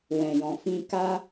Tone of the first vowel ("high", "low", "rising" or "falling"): low